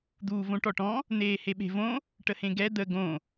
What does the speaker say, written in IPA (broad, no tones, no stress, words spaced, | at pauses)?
d̪uːvõʈɔʈɔ̃ | n̪eːheɓe̤võ | ʈəhẽɡɛ d̪ə ɡõ